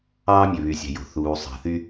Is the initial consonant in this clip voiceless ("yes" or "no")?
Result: no